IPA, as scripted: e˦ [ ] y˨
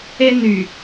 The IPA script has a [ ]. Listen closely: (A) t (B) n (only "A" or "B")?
B